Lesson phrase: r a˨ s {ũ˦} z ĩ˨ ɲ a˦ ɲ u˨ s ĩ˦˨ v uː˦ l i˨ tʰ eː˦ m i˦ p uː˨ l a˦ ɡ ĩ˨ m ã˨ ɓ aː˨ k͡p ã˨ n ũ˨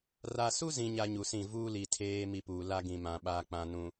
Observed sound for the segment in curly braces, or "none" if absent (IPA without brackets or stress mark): u˦